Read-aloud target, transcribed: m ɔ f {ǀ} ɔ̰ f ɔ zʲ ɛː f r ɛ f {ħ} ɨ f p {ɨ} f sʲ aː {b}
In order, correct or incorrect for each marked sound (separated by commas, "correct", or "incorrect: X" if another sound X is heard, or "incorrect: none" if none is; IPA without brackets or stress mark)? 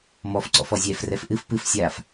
correct, incorrect: ʔ, correct, incorrect: f